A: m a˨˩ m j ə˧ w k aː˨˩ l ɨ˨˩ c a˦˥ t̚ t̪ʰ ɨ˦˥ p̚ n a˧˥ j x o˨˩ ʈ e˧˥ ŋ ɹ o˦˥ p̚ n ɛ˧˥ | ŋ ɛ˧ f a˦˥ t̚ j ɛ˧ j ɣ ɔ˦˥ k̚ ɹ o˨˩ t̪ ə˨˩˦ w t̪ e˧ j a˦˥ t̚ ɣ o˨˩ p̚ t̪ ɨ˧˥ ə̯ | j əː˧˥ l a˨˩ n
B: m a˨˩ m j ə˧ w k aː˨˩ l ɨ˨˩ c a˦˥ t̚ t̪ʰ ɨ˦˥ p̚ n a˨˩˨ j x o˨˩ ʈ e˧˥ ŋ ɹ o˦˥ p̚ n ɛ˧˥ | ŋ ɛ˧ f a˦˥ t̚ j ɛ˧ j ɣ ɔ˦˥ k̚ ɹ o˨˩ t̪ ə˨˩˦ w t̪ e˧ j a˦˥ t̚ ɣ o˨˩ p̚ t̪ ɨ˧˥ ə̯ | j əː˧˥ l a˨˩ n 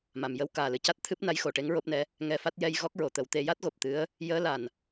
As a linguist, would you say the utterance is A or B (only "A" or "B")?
A